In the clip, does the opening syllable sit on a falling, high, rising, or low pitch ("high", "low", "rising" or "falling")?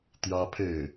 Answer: high